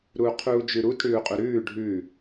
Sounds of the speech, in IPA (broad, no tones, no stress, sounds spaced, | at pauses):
ɾ uː qʰ uː d͡ʒ ʉ ɾ u t ɽ ʉː u̯ qʼ u ɾ ʉː ɖʱ ʉ